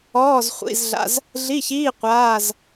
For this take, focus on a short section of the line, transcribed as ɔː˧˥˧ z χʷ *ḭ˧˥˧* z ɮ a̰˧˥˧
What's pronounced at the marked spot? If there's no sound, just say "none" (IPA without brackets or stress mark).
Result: ḭ˧˥˧